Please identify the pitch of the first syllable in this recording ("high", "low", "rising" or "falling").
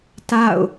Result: falling